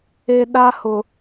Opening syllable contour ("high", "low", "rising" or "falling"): low